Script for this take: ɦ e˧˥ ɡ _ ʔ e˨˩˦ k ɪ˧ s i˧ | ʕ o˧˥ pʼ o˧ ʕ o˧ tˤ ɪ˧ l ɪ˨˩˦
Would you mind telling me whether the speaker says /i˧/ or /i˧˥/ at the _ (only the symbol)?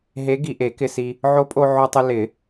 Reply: i˧